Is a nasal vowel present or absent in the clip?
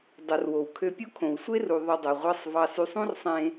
present